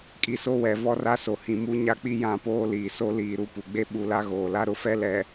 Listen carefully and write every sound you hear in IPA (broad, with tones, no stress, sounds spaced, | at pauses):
kʼ i˨ s o˦ w ɛ˨ v ɔ˦ r a˦ s o˨ h ĩ˨ m u˦ ɲ a˦ k͡p i˦ j ã˦˨ p oː˦ l iː˨ s o˦ l iː˨ ɾ u˦ p u˨ ɡ͡b e˦ ɓ u˨ l a˦ ɣ oː˨ l a˦ ɾ ʊ˦ f ɛ˦ l ɛ˨